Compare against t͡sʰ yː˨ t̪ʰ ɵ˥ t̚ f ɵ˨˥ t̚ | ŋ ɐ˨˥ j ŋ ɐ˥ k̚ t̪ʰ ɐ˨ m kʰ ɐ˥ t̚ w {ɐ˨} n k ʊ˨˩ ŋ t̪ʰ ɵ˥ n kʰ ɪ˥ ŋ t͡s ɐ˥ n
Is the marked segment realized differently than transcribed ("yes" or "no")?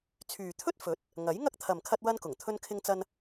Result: yes